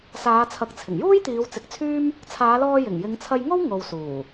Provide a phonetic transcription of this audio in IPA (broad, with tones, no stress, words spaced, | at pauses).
saː˨˧t͡sʰɐ˨˥k̚t͡sʰɪ˨˩ŋjuː˥j t̪iː˨˧wt͡sɪ˨˥k̚t͡sʰyː˥m | t͡sʰaː˨˧lɔː˧ jɪ˨˩ŋjɪ˨˧ŋt͡sʰɐ˧jŋo˥w ŋo˨wsuː˨˩